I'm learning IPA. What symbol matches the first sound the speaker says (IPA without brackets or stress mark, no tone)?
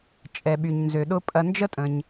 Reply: t͡ʃʼ